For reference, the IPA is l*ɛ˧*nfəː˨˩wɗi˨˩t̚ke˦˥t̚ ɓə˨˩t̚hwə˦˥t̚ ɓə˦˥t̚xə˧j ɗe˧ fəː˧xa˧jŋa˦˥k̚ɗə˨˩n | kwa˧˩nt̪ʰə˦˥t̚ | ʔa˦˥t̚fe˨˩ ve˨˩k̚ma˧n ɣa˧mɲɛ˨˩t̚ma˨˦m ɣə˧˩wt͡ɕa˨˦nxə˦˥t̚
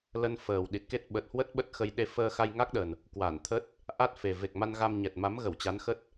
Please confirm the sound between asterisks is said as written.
no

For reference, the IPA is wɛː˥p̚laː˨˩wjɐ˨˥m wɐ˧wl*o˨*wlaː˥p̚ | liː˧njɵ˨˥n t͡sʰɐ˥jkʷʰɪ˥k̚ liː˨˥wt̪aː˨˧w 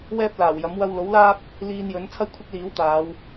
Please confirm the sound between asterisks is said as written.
no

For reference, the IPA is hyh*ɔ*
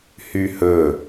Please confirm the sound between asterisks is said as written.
no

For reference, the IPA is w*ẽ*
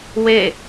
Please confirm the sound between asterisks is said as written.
no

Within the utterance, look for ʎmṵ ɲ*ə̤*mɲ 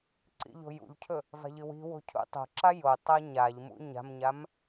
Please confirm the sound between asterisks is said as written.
no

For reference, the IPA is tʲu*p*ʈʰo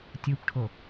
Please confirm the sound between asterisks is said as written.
yes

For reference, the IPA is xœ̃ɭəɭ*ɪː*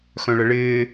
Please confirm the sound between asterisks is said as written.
yes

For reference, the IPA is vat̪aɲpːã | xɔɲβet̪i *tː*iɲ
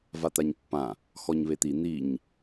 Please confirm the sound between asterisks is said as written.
no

